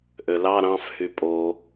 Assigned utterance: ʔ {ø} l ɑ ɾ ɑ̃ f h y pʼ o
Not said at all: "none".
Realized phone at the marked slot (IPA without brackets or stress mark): ø